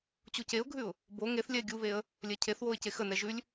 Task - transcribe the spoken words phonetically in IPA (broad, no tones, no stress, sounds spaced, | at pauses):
t͡ɕ u c e ʊ̯ ɡʱ ʉ ʊ̯ | b o ŋ e θ lʲ ɛ ɪ̯ ɡʲ u β e ə̯ | lʲ ɛ cʰ e θ w o ɪ̯ c e x ə n ɛ ʒ ʉ lʲ